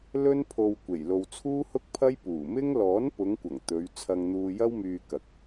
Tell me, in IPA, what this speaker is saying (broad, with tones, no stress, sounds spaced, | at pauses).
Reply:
l ɵ˥ n pʰ o˧ w kʷ e˨˩ j l o˧ w t͡sʰ uː˥ h ʊ˥ k̚ pʰ ɐ˥ j p uː˨˩ m ɪ˥ ŋ l ɔː˨˥ n p ʊ˨˧ ŋ kʷ ɐ˨˩ ŋ t̪ ɵ˨˧ ɥ t͡sʰ ɐ˧ ŋ n̪ uː˧ j ɐ˥ w m yː˧ k ɐ˨ k̚